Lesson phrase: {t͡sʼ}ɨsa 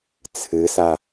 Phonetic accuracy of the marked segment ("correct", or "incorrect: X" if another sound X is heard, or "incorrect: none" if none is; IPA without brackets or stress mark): incorrect: t͡sʰ